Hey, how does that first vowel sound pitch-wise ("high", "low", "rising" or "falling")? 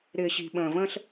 low